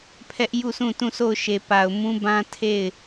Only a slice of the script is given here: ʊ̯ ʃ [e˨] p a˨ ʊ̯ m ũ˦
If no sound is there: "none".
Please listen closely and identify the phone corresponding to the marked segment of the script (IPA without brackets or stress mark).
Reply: e˨